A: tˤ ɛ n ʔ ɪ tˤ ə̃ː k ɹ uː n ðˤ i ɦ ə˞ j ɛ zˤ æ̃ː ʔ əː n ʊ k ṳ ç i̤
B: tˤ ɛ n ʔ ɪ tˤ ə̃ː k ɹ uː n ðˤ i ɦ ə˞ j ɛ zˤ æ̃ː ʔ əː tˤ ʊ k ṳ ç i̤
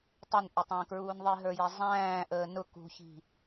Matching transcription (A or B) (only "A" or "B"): A